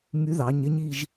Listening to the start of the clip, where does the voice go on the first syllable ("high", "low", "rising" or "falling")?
rising